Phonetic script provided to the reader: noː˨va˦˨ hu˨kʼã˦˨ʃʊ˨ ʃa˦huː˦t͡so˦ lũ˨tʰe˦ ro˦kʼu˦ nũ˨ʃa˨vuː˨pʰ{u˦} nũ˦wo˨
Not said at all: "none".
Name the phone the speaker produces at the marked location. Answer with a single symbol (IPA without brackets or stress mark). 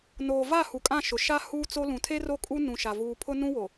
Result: ʊ˦